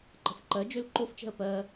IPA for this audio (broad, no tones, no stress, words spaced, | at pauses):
ǃə̤fǃɜ d͡ʒølǃoft͡ʃɛ̤ə̯ pɜ